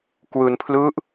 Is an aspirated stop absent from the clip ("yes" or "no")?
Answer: no